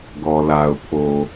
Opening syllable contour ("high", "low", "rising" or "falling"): low